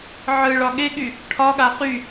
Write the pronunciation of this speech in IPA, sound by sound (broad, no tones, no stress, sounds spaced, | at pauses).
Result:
ʕ ɯ ɭ ɒ ɠ e ɠ y | ʈʰ ɒ ɠ a χ y